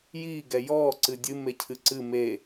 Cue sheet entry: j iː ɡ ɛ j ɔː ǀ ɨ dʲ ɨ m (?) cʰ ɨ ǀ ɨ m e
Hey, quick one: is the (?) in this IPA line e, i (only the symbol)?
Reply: e